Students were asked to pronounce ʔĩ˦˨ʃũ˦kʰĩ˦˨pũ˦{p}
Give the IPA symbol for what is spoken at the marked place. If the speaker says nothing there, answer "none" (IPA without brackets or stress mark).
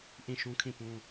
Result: none